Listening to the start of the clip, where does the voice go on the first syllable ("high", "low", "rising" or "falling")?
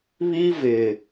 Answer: high